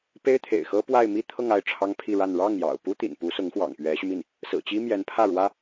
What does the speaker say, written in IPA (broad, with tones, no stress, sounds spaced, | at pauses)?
p e˥ ɪ̯ t̪ʰ ḛ˨˩ ɪ̯ x ɤ˥ p w a˥˧ ɪ̯ m i˥˧ t̪ʰ ɤ˥˧ ŋ a˥˩ ɪ̯ ʈ͡ʂʰ ɑ˥ ŋ pʰ i˥˧ ɻ a˥˧ n ɻ ɑ˥˩ ŋ j ɑ̰˨˩ ʊ̯ p u˥ t̪ ḭ˨˩ n p u˧˥ s ʊ˧˥ ŋ x w ɑ̰˨˩ ŋ p ɥ ɛ˧˥ ɕ y˧ m i˥˩ n | s ɹ̩˨˩ t͡ɕ i˥ m j ɛ˧˥ n pʰ ä˥˩ ɻ w ä˥